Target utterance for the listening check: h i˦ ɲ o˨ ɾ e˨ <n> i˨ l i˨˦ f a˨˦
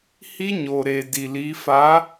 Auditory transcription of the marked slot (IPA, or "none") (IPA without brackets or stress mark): d